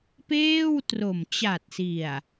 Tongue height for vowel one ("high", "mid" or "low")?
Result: mid